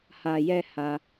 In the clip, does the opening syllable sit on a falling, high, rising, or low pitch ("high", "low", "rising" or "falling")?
low